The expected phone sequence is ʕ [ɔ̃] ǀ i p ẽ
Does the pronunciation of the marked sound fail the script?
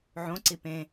yes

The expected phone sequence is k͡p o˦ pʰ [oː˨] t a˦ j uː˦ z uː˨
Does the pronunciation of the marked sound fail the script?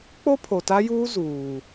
yes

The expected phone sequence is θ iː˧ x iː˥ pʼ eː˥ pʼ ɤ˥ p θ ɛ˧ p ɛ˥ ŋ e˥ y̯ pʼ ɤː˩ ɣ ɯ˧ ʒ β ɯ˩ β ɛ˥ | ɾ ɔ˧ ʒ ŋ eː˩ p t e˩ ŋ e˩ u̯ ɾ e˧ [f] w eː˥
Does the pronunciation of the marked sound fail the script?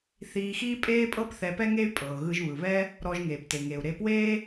yes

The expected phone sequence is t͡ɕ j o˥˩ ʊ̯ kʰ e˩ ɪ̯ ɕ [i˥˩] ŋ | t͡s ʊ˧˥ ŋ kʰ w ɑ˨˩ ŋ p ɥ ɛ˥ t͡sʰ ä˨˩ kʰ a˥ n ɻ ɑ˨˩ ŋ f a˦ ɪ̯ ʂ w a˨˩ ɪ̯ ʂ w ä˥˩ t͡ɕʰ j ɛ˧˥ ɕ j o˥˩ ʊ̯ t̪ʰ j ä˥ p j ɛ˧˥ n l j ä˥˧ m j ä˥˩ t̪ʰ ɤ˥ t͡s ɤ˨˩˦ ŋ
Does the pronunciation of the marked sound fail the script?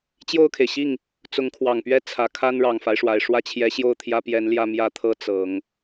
no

